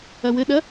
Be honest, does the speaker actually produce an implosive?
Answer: yes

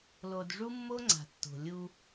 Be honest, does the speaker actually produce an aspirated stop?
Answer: no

